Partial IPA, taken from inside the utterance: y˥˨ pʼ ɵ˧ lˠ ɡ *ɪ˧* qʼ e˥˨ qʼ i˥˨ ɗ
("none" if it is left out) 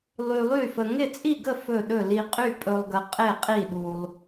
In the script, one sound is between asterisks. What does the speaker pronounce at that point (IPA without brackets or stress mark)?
ə˧